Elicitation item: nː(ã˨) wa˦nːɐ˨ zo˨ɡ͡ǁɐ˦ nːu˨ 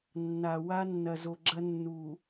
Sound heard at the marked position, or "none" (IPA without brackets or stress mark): a˨